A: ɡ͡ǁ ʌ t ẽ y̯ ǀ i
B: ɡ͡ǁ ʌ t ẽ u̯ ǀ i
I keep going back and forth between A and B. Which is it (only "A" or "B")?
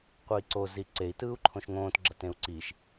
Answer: B